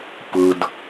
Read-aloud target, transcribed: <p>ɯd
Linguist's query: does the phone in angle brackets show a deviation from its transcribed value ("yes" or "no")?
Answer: no